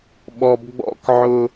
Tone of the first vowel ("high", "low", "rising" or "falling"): low